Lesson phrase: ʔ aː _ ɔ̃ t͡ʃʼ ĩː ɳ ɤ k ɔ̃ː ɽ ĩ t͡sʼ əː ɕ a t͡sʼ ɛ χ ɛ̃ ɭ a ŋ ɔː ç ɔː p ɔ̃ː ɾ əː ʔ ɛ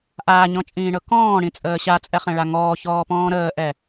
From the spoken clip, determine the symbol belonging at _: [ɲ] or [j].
ɲ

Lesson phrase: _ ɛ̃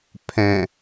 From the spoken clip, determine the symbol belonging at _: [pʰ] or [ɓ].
pʰ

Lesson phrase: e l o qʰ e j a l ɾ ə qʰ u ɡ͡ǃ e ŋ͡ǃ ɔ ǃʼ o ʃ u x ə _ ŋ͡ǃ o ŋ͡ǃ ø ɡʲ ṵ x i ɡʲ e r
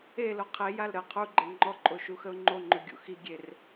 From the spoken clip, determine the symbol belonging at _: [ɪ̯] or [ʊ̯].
ʊ̯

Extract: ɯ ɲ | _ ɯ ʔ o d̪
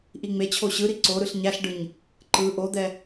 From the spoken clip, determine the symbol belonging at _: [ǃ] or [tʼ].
ǃ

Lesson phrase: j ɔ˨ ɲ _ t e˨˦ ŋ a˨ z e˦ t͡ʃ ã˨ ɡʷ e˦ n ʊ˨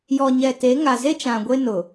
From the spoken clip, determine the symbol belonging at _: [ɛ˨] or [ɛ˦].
ɛ˨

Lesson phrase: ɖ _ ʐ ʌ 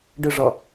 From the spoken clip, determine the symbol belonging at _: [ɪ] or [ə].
ɪ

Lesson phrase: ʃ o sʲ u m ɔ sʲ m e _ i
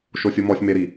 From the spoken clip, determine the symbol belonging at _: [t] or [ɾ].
ɾ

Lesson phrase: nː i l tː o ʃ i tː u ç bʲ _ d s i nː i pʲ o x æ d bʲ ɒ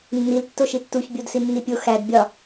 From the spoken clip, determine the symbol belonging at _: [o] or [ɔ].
o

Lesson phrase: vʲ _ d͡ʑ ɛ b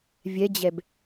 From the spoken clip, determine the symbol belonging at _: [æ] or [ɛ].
ɛ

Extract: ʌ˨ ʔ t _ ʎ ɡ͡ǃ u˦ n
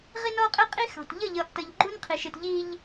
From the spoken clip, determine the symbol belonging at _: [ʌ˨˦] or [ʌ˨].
ʌ˨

